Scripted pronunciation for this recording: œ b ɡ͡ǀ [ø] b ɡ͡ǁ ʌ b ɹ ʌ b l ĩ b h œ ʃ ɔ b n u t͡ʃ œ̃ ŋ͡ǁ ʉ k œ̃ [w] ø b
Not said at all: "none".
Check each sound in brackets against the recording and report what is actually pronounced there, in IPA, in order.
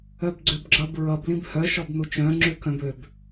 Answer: ø, b

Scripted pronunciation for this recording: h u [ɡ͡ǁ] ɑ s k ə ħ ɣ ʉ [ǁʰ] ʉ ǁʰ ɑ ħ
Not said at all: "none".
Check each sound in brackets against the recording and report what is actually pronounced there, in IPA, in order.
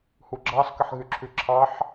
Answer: ɡ͡ǁ, ǁʰ

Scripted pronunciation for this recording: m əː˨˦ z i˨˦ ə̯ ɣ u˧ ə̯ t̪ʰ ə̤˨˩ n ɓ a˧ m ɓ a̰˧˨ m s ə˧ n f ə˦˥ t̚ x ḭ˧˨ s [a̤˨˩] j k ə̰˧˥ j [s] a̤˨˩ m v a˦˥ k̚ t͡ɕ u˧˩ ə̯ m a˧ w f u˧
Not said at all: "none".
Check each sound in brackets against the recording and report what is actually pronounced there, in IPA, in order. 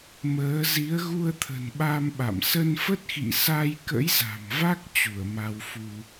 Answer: a˧, z

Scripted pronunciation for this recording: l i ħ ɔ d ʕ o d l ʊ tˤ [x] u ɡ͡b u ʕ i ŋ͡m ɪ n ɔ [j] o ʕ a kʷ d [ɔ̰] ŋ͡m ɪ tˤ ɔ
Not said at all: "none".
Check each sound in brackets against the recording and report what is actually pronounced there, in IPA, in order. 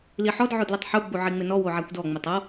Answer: ħ, w, ɔ

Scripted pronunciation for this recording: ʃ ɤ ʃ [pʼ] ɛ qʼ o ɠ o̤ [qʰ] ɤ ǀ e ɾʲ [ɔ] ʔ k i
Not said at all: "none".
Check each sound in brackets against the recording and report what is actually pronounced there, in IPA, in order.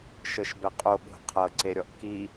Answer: b, qʰ, ɔ

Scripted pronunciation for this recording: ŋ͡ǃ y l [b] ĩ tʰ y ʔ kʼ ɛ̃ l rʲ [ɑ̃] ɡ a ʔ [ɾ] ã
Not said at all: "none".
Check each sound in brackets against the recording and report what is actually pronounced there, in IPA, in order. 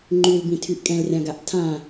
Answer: b, ã, tʰ

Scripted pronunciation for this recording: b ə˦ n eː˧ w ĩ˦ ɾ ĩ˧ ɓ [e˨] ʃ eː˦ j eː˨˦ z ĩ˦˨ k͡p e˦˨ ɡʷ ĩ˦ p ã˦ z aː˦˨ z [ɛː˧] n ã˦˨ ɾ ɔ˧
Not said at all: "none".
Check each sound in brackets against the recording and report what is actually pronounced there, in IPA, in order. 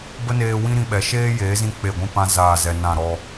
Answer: ɛ˨, ɛ˧

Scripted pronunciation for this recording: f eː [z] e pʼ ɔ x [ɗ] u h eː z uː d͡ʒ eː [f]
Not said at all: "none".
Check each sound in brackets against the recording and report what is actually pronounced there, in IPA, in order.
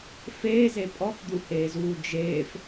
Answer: z, d̪, f

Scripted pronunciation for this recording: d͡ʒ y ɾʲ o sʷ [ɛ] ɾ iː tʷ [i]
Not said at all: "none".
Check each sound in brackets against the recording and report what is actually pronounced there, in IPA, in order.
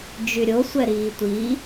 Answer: ɛ, i

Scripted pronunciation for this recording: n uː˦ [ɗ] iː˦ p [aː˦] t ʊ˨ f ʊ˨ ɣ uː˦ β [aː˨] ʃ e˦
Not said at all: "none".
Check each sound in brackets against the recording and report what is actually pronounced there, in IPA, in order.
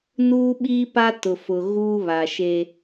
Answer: ɓ, a˦, a˨

